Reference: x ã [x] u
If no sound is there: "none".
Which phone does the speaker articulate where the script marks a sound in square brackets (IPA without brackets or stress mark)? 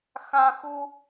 x